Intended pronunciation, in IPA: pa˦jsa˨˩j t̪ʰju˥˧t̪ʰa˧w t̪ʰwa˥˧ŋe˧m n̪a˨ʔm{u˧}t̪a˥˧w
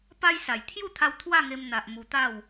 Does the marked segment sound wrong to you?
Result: no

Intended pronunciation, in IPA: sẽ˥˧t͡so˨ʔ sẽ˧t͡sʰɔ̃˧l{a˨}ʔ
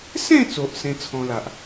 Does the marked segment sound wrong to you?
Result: no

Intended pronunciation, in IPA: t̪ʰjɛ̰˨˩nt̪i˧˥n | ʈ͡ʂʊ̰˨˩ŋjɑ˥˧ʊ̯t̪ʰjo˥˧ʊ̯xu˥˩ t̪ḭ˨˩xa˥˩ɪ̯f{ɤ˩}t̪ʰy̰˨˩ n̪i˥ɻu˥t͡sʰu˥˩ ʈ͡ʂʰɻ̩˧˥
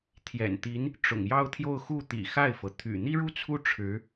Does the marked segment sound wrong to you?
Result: no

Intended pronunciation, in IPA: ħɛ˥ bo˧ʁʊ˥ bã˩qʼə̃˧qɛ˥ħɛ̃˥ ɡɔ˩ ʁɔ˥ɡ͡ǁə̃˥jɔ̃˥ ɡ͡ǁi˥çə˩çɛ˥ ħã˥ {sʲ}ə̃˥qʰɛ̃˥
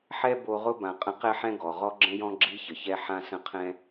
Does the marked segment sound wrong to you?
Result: yes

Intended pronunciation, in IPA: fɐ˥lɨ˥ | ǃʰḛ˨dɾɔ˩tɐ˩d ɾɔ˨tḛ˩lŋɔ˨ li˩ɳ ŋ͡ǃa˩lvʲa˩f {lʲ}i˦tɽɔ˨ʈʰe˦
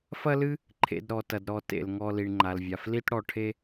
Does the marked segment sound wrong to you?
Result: yes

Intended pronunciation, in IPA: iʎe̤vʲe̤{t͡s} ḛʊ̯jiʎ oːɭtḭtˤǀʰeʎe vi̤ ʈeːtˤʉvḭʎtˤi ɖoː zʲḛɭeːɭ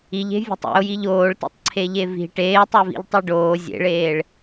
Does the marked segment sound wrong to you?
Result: yes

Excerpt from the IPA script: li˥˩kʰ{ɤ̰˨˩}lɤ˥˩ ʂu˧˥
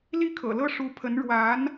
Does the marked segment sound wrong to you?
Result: no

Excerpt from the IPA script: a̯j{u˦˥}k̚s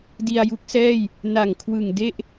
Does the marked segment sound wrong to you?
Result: no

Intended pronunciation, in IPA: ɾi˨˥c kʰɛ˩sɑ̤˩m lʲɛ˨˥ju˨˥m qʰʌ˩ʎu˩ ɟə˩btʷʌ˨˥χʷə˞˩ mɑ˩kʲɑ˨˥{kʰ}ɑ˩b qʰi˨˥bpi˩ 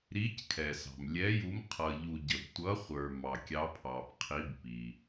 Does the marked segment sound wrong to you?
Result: yes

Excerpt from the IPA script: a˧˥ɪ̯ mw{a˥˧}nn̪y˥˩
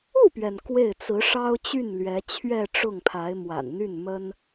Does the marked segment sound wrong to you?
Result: yes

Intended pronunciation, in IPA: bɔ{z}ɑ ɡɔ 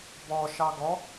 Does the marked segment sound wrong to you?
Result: yes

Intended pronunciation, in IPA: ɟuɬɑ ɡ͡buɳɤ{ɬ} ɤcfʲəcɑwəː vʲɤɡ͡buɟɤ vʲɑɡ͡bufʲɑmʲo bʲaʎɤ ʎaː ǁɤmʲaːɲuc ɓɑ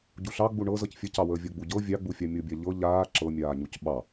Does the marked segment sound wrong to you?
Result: yes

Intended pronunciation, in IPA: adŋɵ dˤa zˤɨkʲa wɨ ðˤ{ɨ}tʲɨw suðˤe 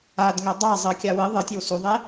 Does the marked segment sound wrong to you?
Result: no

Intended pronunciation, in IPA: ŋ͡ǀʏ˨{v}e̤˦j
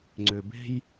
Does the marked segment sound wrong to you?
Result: yes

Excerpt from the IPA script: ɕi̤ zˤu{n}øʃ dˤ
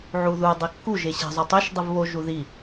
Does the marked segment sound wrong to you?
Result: yes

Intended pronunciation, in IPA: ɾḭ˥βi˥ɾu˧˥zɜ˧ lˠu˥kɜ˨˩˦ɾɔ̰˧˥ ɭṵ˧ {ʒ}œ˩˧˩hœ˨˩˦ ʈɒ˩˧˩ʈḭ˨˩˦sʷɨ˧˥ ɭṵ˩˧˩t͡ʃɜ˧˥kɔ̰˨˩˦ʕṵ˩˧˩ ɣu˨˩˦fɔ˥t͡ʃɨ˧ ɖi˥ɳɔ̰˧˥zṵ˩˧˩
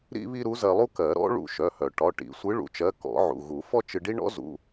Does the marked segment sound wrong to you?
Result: yes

